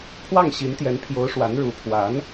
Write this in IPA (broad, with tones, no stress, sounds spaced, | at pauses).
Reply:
pʰ w ɑ˥˩ ŋ ɕ i˧˥ n t̪ j ɛ˧˥ n pʰ j o˧˥ ʊ̯ ʂ w a˧˥ n ɻ u˧˥ pʰ w a˧˥ n